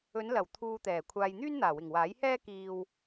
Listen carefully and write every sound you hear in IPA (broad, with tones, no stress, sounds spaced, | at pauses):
ɵ˨˧ n l ɐ˨˩ w t̪ʰ uː˨ t̪ ɛː˨˩ kʷʰ aː˨ j n̪ yː˥ n n̪ aː˨˩ w ɪ˨˩ ŋ w aː˨˥ j h ɛː˥ k iː˨ w